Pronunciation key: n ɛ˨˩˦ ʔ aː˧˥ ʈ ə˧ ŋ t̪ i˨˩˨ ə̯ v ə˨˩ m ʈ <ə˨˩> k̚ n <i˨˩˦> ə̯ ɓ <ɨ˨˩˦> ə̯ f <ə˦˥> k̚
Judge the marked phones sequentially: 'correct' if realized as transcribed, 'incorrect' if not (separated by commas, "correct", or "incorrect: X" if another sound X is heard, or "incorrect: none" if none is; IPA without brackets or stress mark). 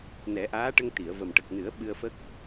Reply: correct, incorrect: ɨ˨˩˦, incorrect: ɨ˧, correct